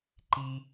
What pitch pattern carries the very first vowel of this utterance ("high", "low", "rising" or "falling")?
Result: high